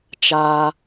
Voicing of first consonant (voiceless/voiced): voiceless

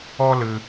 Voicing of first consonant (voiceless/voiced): voiced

